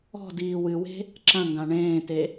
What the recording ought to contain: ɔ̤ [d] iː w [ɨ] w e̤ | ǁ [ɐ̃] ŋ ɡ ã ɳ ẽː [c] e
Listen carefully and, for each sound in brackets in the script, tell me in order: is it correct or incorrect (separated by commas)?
correct, correct, correct, incorrect